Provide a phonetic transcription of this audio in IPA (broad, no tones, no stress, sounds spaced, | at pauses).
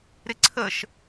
ɾ ɪ ǀʰ ə ʃ